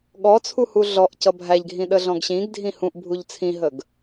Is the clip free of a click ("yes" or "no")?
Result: yes